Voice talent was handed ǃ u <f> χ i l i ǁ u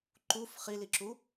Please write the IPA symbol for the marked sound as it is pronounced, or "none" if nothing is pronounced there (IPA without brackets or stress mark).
f